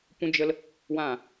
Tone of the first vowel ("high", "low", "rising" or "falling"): high